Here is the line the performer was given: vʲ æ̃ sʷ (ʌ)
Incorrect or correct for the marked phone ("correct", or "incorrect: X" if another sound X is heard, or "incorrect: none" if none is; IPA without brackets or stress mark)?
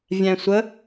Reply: incorrect: ə